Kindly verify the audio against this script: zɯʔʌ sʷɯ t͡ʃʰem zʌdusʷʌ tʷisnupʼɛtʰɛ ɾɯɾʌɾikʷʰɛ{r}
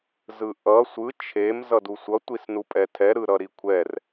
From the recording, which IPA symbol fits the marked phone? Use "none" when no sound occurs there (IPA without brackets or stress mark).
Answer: r